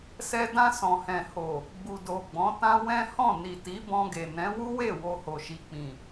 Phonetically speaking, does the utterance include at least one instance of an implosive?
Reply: no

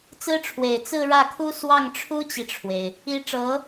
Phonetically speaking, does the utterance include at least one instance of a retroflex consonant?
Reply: yes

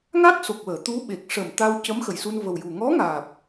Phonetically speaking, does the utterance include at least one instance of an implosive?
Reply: yes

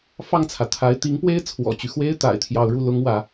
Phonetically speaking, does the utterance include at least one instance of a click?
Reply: no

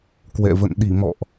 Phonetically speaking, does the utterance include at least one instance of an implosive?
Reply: yes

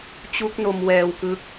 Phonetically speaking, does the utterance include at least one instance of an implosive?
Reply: no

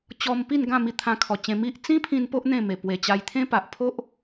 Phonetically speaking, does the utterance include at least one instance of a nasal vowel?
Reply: yes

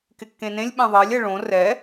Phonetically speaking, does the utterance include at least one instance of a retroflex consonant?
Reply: yes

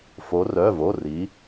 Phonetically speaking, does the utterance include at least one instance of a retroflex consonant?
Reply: no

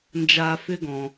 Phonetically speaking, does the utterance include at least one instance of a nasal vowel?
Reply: yes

